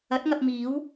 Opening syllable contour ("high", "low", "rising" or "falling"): rising